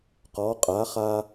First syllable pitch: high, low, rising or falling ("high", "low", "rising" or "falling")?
rising